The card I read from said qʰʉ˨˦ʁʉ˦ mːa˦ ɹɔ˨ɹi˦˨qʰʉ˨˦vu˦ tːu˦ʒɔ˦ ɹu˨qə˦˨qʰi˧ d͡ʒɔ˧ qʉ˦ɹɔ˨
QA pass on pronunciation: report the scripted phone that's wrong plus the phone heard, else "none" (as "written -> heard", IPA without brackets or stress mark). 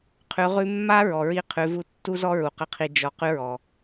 ʒ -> z